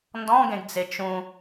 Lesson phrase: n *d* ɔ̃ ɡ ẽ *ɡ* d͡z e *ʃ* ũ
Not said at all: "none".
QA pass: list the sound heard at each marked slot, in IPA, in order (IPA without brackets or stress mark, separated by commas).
d, ɡ, t͡ʃ